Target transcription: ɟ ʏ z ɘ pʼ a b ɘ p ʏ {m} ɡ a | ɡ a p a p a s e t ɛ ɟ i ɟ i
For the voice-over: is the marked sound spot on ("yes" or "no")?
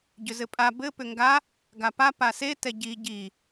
no